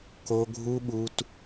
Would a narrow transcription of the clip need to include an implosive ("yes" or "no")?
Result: yes